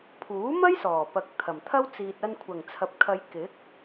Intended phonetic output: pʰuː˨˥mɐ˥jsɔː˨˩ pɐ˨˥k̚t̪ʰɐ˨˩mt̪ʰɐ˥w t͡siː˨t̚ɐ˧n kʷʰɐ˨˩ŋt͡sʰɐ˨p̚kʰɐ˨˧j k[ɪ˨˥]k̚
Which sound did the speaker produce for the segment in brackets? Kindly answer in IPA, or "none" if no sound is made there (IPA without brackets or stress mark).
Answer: ɪ˨˥